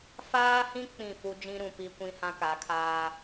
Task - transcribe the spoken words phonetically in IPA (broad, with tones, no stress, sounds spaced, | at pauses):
f aː˦ h ĩ˦ k͡p ĩ˦˨ f u˦ d͡ʒ ĩ˦ ɾ ũ˨ p i˦ kʷ ĩ˦ h ã˦ k a˨˦ kʰ aː˦